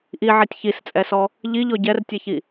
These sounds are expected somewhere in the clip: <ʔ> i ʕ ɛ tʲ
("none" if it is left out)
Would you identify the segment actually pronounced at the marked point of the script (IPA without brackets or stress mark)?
ʔ